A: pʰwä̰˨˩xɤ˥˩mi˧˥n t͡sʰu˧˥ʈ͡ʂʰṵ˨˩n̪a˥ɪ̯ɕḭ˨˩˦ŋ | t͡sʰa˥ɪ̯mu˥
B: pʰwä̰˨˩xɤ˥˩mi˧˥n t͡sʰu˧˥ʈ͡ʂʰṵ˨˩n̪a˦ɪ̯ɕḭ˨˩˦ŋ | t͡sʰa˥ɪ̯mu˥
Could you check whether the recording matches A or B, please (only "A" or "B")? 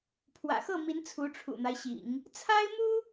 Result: B